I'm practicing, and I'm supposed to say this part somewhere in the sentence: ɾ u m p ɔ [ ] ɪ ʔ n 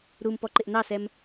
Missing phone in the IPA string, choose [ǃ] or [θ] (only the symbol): ǃ